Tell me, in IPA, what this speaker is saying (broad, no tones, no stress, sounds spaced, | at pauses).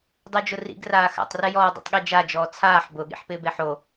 dˤ o d͡ʒ ʊ r ḭ ɡ r aː x a̰ tˤ r ɛ j ɔː dˤ ḭ tˤ ɠ e d͡ʒ a d͡ʒ ɔː t͡sʰ aː ħ b ʊ ɠ ḭ ħ p ɪː b e ħ o